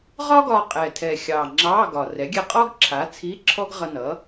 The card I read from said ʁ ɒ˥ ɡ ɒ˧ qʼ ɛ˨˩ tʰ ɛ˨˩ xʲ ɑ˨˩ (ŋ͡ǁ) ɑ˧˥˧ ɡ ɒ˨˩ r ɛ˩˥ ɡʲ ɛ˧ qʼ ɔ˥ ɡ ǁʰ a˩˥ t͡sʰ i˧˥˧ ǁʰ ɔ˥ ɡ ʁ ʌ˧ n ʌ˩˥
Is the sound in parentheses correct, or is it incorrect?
correct